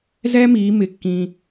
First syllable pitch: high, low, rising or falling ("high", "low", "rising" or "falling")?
high